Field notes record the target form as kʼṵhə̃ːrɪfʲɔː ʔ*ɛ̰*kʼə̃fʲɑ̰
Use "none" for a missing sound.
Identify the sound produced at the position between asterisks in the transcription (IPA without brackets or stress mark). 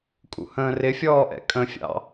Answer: ɛ̰